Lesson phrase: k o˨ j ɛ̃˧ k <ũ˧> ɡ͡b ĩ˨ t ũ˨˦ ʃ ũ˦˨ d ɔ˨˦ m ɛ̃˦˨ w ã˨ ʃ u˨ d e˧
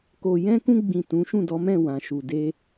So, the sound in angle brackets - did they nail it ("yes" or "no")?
yes